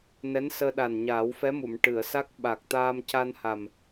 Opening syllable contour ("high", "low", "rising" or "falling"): rising